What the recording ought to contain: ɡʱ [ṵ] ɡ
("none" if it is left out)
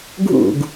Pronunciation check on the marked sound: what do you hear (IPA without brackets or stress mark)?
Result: ṵ